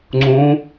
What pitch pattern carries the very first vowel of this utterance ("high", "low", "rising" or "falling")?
rising